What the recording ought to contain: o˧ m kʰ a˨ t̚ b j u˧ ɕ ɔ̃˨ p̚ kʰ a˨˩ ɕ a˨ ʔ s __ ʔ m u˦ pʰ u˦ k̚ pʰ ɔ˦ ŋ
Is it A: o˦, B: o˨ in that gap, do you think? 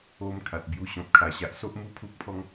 A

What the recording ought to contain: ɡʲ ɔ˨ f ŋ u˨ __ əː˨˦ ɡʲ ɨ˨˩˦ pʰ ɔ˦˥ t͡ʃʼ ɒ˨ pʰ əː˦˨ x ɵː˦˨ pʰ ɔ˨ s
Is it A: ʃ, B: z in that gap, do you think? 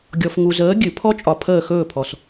B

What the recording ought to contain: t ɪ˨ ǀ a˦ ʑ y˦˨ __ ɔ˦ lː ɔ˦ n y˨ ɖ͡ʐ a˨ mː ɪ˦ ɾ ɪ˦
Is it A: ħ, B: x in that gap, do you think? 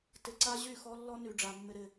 B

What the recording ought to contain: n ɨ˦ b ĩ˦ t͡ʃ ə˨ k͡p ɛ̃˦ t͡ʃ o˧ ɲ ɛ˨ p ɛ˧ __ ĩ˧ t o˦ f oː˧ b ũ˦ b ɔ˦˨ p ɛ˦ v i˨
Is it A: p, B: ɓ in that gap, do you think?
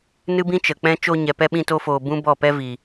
B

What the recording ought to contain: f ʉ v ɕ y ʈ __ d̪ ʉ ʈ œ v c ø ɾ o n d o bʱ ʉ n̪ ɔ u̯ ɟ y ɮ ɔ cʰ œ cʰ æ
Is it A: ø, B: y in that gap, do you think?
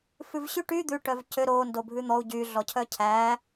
B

